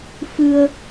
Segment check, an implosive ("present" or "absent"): absent